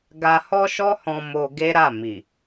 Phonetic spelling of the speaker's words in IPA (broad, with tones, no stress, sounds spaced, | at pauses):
ɡ a˧ h ɔ˦ ʃ ɔ˦ h ɔ̃˧ m o˧ ɡ e˦ ɾ a˦˨ m i˨